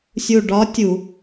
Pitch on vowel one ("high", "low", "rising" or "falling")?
low